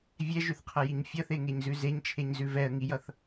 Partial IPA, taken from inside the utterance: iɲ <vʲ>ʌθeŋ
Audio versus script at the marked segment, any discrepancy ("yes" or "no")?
yes